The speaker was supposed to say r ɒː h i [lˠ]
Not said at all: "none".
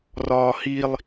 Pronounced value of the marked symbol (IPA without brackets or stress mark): lˠ